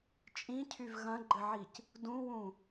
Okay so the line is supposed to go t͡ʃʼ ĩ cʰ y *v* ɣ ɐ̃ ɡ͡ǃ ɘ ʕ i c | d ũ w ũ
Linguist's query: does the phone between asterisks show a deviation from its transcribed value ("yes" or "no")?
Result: no